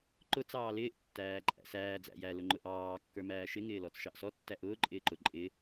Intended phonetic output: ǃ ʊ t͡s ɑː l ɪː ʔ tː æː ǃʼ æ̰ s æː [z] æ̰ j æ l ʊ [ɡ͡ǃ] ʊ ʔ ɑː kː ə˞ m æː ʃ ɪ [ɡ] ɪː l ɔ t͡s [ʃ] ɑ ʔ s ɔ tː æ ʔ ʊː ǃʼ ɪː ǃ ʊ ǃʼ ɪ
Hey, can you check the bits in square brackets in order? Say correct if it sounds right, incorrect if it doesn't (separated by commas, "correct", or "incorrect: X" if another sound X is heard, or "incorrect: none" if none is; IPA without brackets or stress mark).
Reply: incorrect: d͡z, incorrect: ŋ͡ǃ, incorrect: ŋ, correct